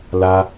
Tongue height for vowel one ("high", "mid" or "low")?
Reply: low